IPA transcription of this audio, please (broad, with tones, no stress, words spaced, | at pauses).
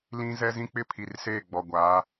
lĩ˦ zɛ˦zĩ˦ k͡pɪ˦pʰi˨rseː˦˨ ɡ͡bɔ˨ɡʷaː˨˦